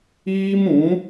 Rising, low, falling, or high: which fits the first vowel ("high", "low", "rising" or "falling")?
high